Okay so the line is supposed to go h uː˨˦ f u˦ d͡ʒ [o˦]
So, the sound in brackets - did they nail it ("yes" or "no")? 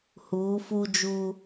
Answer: no